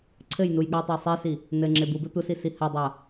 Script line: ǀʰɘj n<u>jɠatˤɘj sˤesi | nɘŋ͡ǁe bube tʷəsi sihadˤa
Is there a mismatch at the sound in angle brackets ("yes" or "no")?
no